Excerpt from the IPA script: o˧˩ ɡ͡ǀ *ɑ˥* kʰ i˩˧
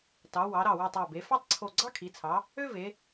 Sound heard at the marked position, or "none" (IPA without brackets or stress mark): ɑ˥